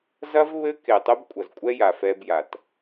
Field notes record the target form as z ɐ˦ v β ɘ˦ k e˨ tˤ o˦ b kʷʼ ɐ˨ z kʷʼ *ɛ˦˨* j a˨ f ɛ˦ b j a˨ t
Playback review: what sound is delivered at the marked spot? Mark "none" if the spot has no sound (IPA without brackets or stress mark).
ɛ˦